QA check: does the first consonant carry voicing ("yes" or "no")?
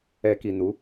no